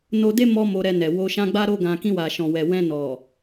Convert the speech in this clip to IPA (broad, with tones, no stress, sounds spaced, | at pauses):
n o˧ d e˦ m ɔ˧ m o˧ ɾ ɛ˧ n ɛ˨ w o˧ ʃ ã˦ ɡ͡b a˦ ɾ o˦ ɡ ã˧ k ĩ˧ w a˨ ʃ ɔ̃˨ w ɛ˨ w ɛ̃˧ n ɔ˨